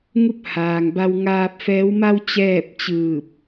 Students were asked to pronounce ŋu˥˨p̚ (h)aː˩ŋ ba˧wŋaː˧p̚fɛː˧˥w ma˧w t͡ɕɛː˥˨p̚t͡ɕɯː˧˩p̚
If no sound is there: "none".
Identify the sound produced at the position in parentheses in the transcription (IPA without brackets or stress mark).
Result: h